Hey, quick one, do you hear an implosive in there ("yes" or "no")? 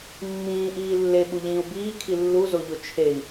yes